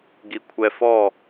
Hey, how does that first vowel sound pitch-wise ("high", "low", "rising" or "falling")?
low